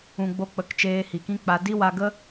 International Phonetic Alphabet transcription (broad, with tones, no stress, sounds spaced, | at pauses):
ũ˨ ɡ͡b o˧ k͡p ə˨˦ k t͡ʃ eː˧ h i˨ k ĩ˦ k͡p a˧ d i˦ w a˧ ɡ ə˦